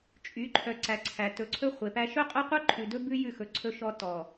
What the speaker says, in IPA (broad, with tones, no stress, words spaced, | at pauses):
t͡ʃʼy˨˦ǃʰœ˨ ǀæ˨ǀʰæ˨ tɵ˨ǀʰɵ˦χʷe˨pæ˦ ʃɵ˦qʼœ˦qʷœ˦ǃʰʉ˨ dɵ˦bʉ˦ jʉ˦˨xɵ˨ ǀʰɵ˦ʃɔ˦ tɔ˨